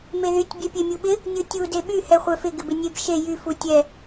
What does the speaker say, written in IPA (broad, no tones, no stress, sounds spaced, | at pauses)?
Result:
m e ð y tʲ bʲ ɛ pʲ e mʲ u ɓ ɪ | nʲ u tʲ u d e ɓ y h ɛ χʷ ɛ f ɪ ɡ ɪ b ɪ nʲ e b ʃ e j y f u tʲ ɛ